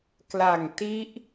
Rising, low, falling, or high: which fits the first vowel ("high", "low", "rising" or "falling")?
low